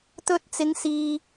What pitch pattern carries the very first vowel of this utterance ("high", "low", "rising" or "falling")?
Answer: high